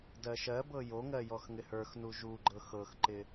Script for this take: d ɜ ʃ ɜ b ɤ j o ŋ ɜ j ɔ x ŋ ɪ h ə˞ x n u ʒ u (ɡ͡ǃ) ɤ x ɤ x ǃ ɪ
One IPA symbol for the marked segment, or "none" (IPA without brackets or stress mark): ɡ͡ǃ